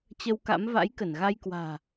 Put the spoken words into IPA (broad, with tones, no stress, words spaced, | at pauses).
t͡ɕə˧wka̰˧˥m va̰˧˥jkə˧˩nɣa˧j kwa̤ː˨˩